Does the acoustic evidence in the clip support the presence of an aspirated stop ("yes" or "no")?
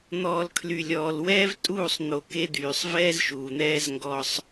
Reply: yes